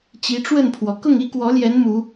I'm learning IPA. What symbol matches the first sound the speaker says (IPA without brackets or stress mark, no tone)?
t͡ɕ